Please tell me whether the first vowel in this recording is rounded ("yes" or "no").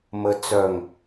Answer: no